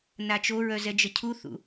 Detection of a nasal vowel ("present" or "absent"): absent